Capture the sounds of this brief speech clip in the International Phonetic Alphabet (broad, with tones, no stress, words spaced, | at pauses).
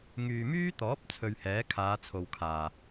ŋyː˨myː˥t̪ɔː˨˥p̚ t͡sʰɵ˧ɥhɛː˨˥kʰaː˨˧ t͡sʰo˨wkʰaː˨˩